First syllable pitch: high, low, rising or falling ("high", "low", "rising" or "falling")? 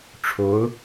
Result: rising